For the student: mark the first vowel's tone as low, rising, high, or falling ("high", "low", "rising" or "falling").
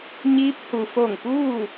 rising